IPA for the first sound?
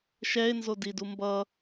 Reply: ʃ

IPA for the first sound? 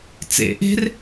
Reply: t͡s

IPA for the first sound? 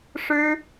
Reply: ʂ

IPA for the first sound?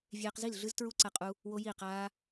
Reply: vʲ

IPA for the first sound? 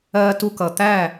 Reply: ɜː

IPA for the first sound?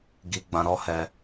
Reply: ɡ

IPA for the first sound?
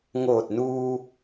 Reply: ŋ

